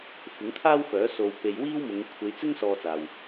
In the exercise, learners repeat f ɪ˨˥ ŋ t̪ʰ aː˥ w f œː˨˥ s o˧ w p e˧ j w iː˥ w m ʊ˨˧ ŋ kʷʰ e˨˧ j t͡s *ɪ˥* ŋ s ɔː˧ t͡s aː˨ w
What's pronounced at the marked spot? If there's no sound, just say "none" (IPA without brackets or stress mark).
ɪ˥